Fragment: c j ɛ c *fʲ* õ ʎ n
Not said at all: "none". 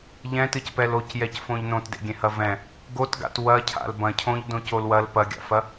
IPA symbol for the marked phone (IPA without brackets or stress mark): f